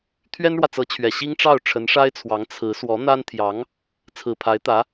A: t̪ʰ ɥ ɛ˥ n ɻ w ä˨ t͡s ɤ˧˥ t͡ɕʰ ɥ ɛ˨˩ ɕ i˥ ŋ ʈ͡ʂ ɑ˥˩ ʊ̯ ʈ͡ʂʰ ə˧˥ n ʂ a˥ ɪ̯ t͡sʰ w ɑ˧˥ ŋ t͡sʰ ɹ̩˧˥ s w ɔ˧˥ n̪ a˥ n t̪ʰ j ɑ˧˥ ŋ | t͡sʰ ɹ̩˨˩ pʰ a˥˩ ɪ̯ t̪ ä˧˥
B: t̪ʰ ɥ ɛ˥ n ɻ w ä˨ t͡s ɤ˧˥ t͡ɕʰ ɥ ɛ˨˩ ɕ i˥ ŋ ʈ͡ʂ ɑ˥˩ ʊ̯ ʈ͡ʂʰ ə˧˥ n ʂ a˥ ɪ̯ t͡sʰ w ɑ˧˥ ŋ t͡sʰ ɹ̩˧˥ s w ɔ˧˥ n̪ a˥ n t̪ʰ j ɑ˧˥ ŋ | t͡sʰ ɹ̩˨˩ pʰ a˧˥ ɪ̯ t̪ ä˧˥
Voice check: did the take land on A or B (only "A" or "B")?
B